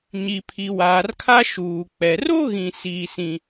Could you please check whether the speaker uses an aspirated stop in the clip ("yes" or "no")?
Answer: yes